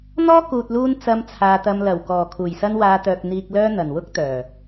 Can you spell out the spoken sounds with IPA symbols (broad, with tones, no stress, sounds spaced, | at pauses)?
n̪ ɔː˥ k uː˨ t̚ l uː˧ n t͡s ɐ˧ m t͡sʰ aː˨ t̪ ɐ˧ m l ɐ˨˩ w k ɔː˨˩ kʰ uː˨˩ j s ɐ˧ n w aː˨˧ t̪ œː˨ k̚ n̪ iː˨ k̚ l œː˧ n̪ ɐ˨˩ n w ʊ˥ k̚ t̪ œː˨˩